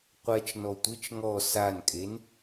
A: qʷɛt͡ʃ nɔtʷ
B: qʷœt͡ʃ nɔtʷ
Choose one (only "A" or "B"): A